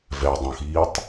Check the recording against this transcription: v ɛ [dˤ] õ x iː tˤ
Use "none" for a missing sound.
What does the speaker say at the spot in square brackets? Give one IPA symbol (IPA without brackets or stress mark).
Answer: dˤ